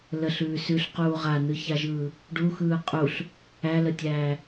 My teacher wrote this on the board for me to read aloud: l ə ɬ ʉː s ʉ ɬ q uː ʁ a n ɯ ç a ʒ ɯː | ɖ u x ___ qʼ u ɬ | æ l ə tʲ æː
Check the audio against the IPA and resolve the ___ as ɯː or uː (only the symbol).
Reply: ɯː